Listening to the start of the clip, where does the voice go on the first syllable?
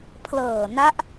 low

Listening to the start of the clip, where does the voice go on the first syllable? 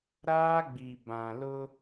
high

